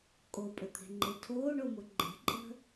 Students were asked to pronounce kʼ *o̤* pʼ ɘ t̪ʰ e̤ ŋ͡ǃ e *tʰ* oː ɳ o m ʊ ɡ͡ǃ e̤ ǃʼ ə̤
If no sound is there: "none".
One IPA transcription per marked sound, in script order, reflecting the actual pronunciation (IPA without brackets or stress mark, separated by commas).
o, tʰ